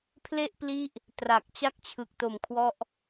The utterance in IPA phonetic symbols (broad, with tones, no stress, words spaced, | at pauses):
pʰle˥˩ʔpli˦˥ʔ | tra˨˩k̚ t͡ɕa˥˩k̚t͡ɕʰɯ˨˩k̚ to˨˩mkʰwɔ˦˥ʔ